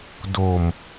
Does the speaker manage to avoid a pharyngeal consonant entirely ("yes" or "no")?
yes